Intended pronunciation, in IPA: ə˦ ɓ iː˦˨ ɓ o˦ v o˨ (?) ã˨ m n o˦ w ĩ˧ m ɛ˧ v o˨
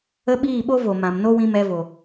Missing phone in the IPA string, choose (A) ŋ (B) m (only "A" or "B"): B